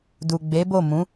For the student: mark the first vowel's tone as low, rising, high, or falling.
low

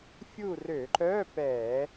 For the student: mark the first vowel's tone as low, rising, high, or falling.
falling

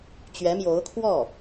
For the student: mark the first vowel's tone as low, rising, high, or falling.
rising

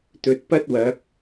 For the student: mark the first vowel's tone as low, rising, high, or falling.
low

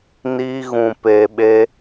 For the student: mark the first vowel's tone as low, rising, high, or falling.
high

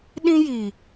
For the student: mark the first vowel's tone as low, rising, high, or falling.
high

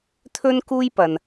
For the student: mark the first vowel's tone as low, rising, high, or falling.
high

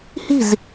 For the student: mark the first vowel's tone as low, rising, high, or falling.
falling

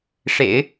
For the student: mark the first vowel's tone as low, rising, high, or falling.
low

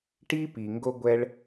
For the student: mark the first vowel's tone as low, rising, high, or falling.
high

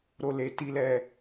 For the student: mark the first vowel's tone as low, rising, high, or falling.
low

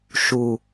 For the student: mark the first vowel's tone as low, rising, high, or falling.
low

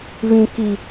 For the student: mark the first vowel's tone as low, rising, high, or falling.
high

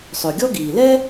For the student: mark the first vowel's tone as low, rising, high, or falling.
low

